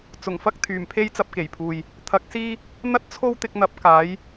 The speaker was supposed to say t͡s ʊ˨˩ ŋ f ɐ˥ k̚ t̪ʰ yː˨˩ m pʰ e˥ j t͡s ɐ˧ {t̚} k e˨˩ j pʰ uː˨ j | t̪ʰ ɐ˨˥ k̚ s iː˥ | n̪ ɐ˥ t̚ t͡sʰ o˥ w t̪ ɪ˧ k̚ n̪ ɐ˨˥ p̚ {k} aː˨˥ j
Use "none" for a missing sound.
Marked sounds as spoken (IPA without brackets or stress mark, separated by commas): p̚, k